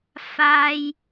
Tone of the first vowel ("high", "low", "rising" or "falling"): high